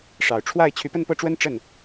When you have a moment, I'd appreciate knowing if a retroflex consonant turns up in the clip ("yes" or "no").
yes